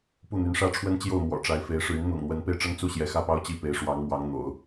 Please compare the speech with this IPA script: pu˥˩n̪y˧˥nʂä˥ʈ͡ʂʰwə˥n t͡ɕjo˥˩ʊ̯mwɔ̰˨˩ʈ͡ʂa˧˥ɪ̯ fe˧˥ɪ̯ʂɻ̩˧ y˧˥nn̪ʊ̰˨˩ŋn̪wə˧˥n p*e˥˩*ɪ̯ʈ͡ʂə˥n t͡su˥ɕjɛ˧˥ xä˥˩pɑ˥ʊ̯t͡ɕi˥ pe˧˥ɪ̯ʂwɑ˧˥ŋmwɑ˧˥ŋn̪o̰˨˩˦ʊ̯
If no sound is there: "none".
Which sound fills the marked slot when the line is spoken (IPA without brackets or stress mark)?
e˥˩